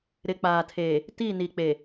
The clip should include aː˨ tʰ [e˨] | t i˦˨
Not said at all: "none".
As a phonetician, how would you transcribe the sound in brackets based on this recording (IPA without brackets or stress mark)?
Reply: eː˨